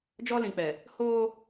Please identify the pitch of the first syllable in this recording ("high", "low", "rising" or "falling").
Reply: high